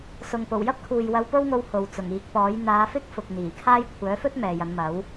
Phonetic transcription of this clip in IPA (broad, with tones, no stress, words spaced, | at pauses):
sʊ˨ŋpo˨˩w jɐ˥p̚kʰuː˨j wɐ˧wpo˥wŋo˧w ho˨wt͡sʊ˨˩ŋiː˨˥k̚pɔː˨˥j n̪aː˨˧fɪ˥k̚fʊ˨k̚ n̪iː˨˩kʰaː˥j kʷʰœː˨˥fɵ˥t̚ mɛː˨jɐ˨˧n mɐ˨˥w